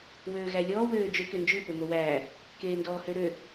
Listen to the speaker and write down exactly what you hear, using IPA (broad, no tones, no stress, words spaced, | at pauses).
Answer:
wøːɣælʲɔː wøːd͡ʒøkø nd͡ʒʉpø mowæː | keːndɔːhøɾø